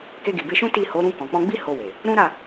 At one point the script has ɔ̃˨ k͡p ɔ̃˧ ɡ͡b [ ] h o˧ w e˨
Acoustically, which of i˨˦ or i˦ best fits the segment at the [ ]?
i˦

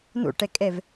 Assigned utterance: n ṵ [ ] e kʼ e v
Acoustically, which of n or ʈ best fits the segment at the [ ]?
ʈ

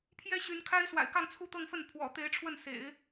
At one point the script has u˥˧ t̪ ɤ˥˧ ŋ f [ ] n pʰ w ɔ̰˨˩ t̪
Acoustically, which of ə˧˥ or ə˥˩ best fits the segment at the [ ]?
ə˥˩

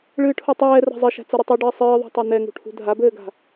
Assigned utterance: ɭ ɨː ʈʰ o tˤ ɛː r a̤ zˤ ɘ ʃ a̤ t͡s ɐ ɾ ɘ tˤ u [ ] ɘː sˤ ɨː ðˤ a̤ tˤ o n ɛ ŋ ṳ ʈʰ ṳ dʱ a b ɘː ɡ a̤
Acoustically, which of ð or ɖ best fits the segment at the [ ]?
ɖ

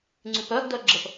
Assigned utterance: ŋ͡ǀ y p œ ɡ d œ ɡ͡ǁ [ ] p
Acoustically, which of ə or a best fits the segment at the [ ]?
ə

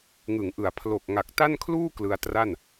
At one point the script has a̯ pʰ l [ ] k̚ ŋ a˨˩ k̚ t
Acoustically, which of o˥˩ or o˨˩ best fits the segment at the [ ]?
o˨˩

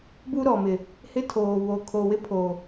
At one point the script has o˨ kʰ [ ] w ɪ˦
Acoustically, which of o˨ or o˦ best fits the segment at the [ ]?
o˨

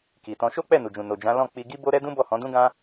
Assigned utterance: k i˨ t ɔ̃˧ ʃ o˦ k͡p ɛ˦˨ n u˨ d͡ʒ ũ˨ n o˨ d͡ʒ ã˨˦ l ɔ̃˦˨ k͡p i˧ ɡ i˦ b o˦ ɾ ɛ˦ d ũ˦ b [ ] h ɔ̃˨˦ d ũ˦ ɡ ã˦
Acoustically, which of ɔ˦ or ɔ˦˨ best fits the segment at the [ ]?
ɔ˦˨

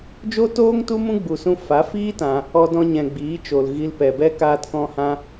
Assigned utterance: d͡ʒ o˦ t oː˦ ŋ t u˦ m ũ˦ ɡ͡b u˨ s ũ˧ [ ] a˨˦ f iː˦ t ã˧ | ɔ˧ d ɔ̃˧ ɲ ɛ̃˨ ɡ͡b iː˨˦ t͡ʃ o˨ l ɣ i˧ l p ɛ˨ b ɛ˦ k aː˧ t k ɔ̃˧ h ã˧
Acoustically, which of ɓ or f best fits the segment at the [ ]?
f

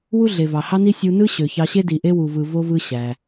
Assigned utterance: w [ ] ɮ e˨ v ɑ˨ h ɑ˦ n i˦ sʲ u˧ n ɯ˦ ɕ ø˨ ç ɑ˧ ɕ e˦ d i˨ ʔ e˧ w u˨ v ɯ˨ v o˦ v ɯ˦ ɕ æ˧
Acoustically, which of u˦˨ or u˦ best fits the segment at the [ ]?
u˦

